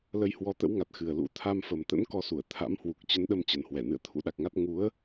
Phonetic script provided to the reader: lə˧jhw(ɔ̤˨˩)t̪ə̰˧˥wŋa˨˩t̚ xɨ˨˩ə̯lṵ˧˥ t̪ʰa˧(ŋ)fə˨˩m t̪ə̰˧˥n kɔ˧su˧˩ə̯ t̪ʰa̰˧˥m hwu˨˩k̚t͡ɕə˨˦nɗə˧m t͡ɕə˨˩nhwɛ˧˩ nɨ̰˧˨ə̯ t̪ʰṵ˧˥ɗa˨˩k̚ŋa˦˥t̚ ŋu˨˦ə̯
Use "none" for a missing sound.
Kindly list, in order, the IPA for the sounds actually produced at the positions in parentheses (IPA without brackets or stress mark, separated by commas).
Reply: ɔ˨˦, m